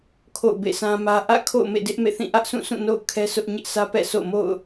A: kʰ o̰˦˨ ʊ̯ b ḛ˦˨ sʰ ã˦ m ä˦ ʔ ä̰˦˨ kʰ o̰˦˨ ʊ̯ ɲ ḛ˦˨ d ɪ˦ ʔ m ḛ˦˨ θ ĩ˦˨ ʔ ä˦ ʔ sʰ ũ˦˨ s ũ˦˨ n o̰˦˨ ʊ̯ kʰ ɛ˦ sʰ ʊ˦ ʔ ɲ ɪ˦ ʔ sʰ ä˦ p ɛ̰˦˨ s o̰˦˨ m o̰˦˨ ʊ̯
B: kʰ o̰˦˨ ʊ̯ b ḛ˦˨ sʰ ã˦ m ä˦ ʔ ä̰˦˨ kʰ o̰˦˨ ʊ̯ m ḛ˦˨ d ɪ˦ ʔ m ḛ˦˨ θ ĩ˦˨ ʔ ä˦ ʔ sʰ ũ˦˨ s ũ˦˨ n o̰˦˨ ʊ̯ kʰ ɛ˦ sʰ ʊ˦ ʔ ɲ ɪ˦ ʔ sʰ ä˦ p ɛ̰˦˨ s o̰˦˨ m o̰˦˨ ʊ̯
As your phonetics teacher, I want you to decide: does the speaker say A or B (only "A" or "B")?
B